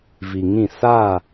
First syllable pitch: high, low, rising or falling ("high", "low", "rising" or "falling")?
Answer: low